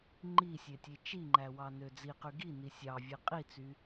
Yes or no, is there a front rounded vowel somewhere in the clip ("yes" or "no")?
yes